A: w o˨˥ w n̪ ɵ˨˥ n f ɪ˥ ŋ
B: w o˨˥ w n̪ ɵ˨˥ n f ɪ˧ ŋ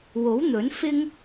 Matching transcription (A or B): A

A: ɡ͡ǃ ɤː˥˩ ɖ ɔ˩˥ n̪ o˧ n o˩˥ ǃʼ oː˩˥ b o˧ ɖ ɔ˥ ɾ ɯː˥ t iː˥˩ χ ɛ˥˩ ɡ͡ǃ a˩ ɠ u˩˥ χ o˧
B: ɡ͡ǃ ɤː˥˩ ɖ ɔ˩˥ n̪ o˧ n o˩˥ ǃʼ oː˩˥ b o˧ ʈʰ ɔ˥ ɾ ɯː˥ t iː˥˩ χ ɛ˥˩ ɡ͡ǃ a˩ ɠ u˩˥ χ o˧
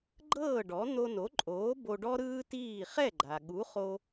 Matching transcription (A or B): A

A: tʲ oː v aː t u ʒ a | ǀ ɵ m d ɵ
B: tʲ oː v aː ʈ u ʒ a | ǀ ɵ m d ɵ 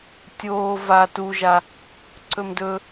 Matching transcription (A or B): A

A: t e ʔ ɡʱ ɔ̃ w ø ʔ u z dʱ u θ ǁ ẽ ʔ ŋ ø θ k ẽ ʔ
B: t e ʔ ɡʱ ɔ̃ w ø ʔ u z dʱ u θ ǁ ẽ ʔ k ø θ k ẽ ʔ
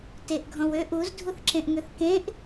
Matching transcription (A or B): A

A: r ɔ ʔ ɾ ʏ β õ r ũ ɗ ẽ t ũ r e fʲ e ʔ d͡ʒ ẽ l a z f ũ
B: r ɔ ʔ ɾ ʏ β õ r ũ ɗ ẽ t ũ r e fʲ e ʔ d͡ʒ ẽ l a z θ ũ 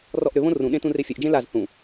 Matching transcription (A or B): B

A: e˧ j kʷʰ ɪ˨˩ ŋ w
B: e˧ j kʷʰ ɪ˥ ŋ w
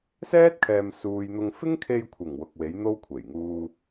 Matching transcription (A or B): A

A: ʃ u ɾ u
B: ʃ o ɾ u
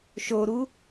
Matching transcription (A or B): B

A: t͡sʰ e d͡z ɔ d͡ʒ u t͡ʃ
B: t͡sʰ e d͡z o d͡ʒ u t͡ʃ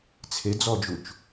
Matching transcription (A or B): A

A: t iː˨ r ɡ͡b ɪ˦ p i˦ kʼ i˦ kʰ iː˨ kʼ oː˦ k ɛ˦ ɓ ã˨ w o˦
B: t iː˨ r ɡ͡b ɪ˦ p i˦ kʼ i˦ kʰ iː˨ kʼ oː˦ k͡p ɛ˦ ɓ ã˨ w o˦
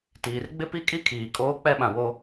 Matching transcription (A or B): B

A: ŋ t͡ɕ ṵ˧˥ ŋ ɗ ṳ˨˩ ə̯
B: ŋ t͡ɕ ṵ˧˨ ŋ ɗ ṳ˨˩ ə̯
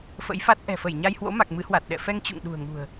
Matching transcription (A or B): B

